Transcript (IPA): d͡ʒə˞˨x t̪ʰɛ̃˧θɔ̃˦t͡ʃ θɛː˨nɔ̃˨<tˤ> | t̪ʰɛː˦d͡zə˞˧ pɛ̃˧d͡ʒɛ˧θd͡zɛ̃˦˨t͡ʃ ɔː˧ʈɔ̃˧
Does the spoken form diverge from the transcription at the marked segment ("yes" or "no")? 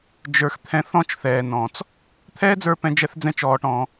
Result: yes